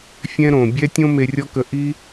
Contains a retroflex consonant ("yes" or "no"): no